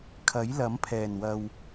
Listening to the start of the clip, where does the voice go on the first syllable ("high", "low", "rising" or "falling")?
rising